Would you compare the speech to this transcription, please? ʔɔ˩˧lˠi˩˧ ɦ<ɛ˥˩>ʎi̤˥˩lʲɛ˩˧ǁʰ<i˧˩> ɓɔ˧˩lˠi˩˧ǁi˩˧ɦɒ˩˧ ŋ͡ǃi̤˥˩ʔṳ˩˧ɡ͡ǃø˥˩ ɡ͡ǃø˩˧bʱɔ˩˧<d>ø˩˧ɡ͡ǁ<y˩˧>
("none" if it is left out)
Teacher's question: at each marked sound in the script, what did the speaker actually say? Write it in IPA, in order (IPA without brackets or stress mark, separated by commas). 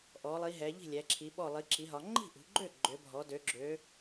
ɛ˩˧, i˩˧, d, ø˩˧